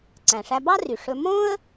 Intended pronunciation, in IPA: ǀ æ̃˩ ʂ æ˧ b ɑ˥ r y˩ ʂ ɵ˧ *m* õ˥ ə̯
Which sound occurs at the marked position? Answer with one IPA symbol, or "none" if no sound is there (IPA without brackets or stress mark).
m